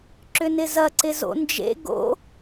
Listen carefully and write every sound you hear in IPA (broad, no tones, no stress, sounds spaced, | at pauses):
ǁ ʏ n ɪ z ɐ ǀ ɪ z o̰ n d͡ʒ ḛ ɡ o̰